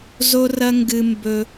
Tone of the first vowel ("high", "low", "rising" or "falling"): high